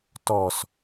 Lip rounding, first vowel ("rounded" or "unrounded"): rounded